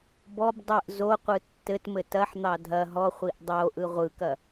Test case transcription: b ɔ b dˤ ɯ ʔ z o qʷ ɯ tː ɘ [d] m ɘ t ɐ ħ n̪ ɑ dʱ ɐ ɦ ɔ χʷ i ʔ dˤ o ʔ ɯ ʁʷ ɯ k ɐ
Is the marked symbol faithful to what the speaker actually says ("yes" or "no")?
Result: no